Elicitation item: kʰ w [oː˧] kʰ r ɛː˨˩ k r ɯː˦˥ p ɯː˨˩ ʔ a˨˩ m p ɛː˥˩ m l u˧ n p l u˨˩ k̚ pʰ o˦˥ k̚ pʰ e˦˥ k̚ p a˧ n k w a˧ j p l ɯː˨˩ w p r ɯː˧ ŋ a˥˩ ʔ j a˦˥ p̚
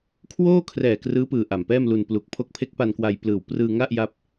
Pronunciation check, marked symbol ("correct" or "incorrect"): incorrect